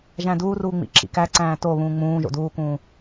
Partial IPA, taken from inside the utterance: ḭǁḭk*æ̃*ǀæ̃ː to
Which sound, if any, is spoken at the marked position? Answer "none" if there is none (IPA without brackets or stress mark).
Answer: æ